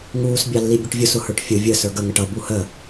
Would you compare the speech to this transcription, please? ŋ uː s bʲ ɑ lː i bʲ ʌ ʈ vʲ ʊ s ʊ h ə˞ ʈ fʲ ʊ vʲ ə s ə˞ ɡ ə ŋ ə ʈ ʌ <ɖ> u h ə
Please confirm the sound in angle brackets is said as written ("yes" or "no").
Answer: no